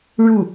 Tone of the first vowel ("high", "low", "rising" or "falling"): falling